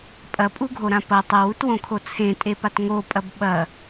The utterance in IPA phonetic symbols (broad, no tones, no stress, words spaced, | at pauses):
pʼɐpʼuɡʱoɾã pɐ tˤɐwutwõkʰo t͡sʰẽtʼepat ŋopʼɐb ɓɐ